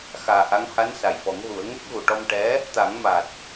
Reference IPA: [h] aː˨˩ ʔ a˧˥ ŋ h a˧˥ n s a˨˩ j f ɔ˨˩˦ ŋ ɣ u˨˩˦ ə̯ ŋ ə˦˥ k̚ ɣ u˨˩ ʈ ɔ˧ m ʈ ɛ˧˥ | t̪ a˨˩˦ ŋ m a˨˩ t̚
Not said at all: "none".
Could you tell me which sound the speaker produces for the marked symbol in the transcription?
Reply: x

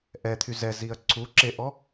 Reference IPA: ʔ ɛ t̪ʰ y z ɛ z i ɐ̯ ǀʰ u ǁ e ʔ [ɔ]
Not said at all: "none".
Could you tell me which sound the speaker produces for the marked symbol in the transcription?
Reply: ɔ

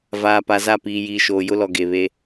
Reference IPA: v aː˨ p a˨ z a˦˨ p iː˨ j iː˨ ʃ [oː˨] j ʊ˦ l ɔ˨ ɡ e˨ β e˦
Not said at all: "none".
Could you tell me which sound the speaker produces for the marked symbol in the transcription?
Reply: oː˨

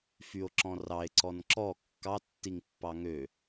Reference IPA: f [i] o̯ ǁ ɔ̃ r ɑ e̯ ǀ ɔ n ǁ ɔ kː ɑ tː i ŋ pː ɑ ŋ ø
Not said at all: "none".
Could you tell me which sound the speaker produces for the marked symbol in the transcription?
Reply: y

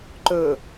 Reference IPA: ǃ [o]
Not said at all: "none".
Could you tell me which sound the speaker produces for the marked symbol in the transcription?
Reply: ɵ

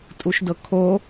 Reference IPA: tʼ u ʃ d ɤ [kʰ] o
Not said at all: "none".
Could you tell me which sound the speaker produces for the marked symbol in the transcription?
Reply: kʰ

